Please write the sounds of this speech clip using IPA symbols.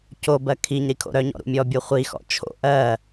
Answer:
cobɜ kʰiɲ ɾikʰo̰ɾœɲɔ̰ ɾṵmʲɔbʲo χʷixɔ̰ t͡ʃʰo̰ ʔɜ

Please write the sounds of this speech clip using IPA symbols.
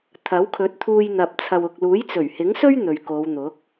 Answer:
t̪ʰɐ˨˥wkʰɵ˨˥t̚t̪ʰuː˧j n̪ɐ˨p̚t͡sʰɐ˨wʊ˨k̚ luː˨˥jt͡sɵ˨˩ɥhɪ˨˥ŋsɵ˥ɥ n̪ɵ˨ɥko˨˧wn̪ʊ˨˥k̚

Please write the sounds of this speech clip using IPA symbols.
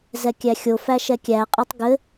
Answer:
zɛkʲæxʲo fæʃɛkʲæ qʼɘtˤɡɘ

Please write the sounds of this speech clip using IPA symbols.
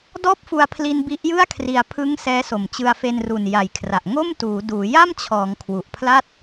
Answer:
dɔː˥˩p̚fu˧a̯pʰli˧n bi˦˥ʔjɯ˥˩a̯kʰri˧a̯ pʰɯ˦˥ŋ sɛː˦˥so˨˩m t͡ɕɯ˧a̯fe˧nru˨˩n ja˨˩jkʰra˨˩ʔ ŋo˥˩mtuː˩˦ duː˩˦ja˥˩mt͡ɕʰɔː˩˦ŋ kʰwu˨˩ʔpʰla˥˩t̚

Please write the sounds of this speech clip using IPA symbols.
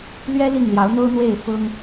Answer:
lɥɛ˦ li˥˨ŋljɑ˨˦ʊ̯n̪o˦ʊ̯n̪we˥˨ɪ̯ fʊ˦ŋ

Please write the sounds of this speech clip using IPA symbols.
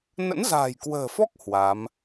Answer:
nə̰˧˥nza̤ː˨˩jkwə̤ː˨˩fɔ˦˥k̚ hwa˨˦m

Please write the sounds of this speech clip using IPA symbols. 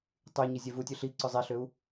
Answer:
tˤy ɲizʲevutʲø ɬi ǀʊzˤiɬʏu̯

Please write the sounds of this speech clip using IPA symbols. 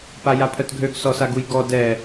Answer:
pajapʰœtɡʱøɡ sɔsaɡujɡɔ dɛ

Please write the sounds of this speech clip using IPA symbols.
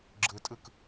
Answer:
ɡ͡ǁɯtʼɯk

